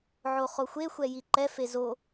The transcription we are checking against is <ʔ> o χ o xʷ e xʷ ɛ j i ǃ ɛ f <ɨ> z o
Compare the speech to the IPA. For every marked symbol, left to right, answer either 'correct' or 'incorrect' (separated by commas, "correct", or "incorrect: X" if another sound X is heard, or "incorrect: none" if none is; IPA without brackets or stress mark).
incorrect: ʕ, incorrect: e